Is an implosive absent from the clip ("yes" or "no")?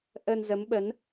no